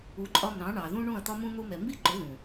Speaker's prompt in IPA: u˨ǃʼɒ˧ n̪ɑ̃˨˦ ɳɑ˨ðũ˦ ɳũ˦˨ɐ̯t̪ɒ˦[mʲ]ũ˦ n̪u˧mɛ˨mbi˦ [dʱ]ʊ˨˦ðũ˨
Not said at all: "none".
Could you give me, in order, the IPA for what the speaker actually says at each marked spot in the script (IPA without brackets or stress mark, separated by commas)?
m, ǃ